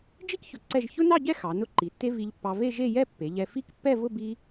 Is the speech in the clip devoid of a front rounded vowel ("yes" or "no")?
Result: yes